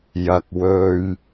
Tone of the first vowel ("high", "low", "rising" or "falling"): high